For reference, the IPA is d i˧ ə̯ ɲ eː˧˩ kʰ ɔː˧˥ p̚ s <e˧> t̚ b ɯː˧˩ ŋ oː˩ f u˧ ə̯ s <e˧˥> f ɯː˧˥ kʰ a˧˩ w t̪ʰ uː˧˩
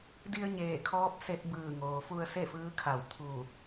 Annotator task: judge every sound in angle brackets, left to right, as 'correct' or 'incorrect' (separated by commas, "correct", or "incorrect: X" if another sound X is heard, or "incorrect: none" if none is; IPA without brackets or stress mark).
correct, incorrect: e˥˨